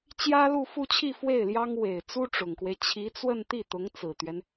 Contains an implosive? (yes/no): no